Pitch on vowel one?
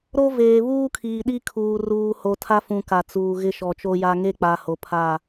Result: high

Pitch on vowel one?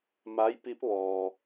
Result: rising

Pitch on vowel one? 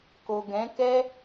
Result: low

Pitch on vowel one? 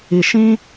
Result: low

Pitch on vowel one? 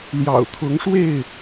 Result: low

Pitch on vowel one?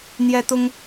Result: high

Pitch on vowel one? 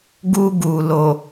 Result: high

